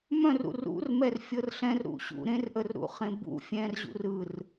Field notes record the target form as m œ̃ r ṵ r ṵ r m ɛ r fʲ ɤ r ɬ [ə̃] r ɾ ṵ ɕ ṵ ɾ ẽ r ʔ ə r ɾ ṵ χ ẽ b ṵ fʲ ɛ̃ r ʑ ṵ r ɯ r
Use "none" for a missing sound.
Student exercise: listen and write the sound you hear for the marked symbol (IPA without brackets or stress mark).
ɛ̃